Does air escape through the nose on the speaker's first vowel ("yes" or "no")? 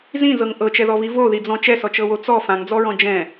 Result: yes